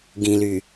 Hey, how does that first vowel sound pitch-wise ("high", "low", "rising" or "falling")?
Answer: low